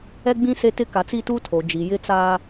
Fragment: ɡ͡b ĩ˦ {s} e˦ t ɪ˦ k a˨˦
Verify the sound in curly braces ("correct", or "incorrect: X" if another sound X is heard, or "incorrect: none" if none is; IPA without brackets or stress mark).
correct